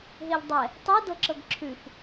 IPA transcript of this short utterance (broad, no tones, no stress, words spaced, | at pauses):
ɦeʎdˤɛ | tˤu dɤǁɤɡǁʰʉf